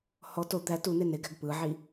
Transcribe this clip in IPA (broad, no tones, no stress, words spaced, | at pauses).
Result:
hɔ to d̪æ tune neɡæɡ pɯʕi